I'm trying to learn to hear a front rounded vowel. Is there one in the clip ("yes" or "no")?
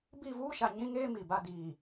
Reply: no